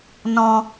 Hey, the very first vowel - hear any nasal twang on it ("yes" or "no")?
yes